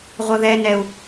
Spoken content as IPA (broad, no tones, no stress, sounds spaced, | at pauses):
ʁʷ ə ð ɛ n ɛ u̯